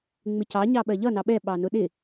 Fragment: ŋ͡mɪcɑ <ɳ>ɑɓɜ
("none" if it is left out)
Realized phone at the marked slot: ɲ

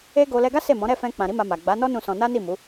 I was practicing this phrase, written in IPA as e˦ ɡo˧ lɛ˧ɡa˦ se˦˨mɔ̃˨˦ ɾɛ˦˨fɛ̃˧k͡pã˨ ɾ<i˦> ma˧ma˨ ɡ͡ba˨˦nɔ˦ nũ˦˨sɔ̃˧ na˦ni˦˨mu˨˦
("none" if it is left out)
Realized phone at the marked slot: i˨˦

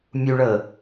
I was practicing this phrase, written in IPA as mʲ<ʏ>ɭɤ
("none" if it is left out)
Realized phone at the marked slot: u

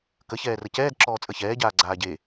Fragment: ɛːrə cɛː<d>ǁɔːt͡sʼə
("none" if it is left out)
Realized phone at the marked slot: d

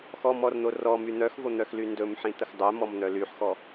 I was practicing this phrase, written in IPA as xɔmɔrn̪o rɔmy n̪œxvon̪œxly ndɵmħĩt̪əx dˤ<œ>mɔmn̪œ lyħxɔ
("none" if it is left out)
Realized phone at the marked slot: œ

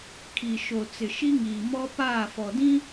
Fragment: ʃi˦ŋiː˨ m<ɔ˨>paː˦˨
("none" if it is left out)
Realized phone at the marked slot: ɔ˦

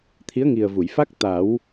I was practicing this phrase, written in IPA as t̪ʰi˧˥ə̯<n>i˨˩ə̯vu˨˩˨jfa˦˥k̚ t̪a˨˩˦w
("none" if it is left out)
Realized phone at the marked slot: ŋ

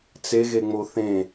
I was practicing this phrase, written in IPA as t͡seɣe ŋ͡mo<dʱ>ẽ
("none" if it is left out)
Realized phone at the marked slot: θ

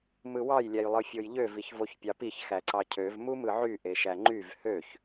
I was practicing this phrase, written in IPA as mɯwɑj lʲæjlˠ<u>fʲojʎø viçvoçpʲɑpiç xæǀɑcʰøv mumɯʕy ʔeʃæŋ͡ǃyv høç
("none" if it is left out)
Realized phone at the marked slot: ɯ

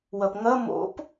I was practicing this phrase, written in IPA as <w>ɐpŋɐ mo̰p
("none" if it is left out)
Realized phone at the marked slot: w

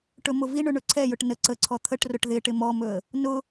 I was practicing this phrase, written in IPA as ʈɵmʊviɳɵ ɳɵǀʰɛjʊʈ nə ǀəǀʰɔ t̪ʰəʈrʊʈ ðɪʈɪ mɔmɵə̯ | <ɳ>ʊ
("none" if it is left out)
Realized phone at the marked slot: n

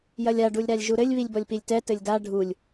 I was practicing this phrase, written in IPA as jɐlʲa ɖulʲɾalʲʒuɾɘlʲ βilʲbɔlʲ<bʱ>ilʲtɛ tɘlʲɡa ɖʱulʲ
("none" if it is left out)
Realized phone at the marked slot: p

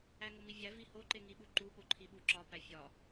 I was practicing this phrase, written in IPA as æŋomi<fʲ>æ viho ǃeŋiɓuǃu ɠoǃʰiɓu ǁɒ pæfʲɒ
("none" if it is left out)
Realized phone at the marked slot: vʲ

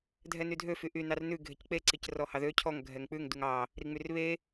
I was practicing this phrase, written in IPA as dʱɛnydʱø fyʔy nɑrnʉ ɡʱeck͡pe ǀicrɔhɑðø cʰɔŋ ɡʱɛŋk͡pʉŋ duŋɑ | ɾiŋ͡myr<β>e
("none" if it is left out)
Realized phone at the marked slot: β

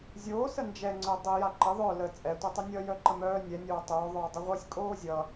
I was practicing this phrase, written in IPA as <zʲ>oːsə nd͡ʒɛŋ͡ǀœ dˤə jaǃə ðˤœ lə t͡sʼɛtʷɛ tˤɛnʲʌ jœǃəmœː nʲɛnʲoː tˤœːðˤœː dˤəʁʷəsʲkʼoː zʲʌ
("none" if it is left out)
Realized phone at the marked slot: zʲ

